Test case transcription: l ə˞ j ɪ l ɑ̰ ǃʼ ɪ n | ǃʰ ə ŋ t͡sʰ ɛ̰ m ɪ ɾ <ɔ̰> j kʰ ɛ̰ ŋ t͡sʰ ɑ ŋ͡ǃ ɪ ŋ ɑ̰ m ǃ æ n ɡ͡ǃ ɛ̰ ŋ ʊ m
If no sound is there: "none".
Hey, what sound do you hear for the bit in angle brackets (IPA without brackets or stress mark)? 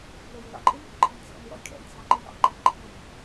ɔ̰